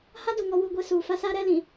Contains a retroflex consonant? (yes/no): no